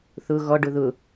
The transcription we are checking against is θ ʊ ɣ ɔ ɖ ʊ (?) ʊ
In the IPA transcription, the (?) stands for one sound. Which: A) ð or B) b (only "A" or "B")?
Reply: A